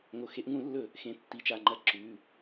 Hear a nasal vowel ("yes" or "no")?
yes